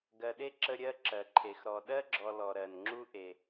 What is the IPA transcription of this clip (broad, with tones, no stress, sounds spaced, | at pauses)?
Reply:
ɡ ɜ˨ ɗ e˥ ǁ ə˦ ɾʲ ɜ˥ ǁ ɜ˩ ǃʰ e˩ x ɾ ɔ˨ ɗ ɜ˥ ɡ͡ǁ ɔ˨ l ɔ˩ ɾ ɜ˩ n ŋ͡ǁ u˥ ʔ e˩